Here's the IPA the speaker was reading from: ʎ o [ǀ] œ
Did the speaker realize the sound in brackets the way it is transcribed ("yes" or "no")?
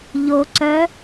yes